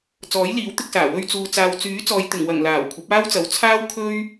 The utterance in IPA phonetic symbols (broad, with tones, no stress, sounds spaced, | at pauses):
t͡s ɔː˨˥ j l iː˨˥ w t̪ ɪ˧ k̚ s aː˨˩ w ɵ˧ ɥ t͡s uː˨ t͡s aː˨ w t͡s yː˨˥ t͡s ɔː˨ j t̪ ɪ˨˩ ŋ w ɐ˨˩ ŋ l aː˨˩ w kʷʰ ɐ˨˥ p̚ aː˥ w t͡s ɐ˨ w t͡sʰ aː˥ w kʰ ɵ˥ ɥ